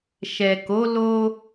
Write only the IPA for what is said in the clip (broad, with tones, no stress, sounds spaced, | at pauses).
ʃ ɛ˨ k o˨˦ l o˧